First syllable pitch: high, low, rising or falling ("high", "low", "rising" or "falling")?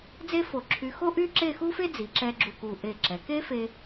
high